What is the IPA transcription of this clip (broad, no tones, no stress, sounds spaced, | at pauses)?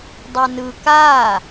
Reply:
dˤ ɛ n ɯ k a